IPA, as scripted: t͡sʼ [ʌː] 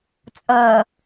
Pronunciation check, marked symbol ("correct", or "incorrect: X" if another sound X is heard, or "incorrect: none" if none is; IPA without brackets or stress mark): correct